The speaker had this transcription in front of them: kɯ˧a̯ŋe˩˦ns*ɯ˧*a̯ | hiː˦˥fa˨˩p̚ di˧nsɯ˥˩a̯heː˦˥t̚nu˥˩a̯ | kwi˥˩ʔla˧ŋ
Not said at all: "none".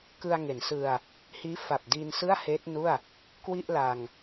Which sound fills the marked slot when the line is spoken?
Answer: ɯ˧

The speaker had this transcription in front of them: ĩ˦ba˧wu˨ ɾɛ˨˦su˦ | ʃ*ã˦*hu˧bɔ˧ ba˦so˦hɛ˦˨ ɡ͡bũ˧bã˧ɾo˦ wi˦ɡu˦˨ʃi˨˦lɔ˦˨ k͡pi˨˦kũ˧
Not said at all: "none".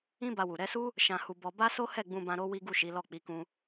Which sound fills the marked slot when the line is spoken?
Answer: ã˧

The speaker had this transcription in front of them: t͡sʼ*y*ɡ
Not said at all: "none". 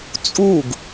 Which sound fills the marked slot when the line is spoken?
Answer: u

